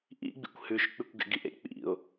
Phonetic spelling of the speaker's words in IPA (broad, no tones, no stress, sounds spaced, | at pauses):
ʔ ḭ ɡ͡b ḭ kʷ h ʉ ʃ k͡p ʉ kʷ ɡ ḛ ɡ i ʔ ḛ k͡p ḭ ʊ̯